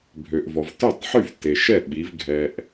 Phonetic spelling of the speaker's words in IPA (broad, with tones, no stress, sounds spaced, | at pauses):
bʱ ø˩ ʔ v ɔ˩ v t œ˥˩ tˤ ħ y˥˩ v t e˩ ʃ ɛ˥˩ ɓ i˩˧ v ɡʱ ɛ˩ ʔ